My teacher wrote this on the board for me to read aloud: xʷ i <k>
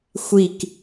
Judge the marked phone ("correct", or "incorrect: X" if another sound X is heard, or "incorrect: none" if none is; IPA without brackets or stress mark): correct